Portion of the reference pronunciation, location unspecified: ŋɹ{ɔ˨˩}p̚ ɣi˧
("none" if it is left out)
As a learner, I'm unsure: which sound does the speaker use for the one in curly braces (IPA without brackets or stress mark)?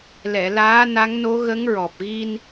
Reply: ɔ˨˩